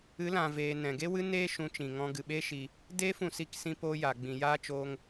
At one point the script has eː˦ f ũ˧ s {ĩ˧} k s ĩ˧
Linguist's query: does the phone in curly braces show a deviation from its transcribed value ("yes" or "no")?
yes